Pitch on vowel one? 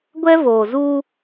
high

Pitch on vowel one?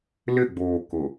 falling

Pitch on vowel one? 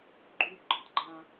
high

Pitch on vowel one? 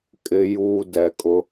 low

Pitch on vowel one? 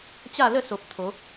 falling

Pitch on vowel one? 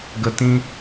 low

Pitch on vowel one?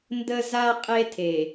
high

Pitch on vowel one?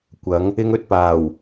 rising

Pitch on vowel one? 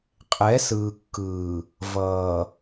rising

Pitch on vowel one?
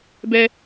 high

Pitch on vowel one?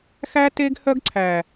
high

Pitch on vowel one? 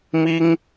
high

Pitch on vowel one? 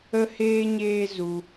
high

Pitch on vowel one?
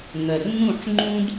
low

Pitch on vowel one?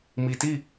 low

